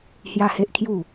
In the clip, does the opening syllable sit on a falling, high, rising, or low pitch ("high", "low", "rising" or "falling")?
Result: high